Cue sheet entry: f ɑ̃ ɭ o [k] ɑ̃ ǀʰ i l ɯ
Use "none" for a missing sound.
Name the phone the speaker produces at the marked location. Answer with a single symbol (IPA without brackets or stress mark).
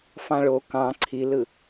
k